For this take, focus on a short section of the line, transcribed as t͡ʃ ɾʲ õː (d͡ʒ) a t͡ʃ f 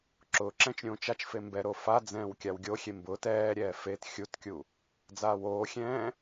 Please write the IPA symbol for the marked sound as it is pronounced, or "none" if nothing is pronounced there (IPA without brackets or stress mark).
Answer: t͡ʃ